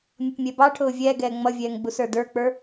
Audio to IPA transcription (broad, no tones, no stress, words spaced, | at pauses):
mʲʌpmʲɛbɑʈʰʊː vʲɛːɡɛː ŋ͡mʌvʲɛːŋ ɡ͡busə˞də˞k͡pə˞